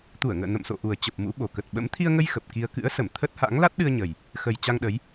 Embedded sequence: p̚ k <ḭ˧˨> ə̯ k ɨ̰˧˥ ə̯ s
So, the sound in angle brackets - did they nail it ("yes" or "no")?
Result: no